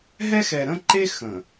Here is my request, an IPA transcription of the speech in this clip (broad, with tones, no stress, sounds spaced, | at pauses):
ɦ ɛ˦ x ɛ˨ ɾ ə̃˦ ǃ e˦ x ə̃˨